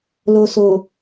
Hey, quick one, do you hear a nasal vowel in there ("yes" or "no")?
no